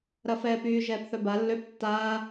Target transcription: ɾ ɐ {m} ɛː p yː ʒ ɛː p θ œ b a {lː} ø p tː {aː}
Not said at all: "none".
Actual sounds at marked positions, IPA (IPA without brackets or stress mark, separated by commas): f, lː, aː